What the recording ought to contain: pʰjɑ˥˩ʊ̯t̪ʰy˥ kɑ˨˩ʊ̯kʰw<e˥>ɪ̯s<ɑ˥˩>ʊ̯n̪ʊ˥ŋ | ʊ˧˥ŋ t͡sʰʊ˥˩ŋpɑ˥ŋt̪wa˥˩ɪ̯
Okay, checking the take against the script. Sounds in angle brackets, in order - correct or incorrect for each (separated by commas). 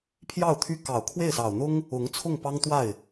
incorrect, incorrect